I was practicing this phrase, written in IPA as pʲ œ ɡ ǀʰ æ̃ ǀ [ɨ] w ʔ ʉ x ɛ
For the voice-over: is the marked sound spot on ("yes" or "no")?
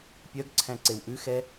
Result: no